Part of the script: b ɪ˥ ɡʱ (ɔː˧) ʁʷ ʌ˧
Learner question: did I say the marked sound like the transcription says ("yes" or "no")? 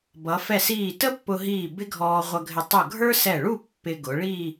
yes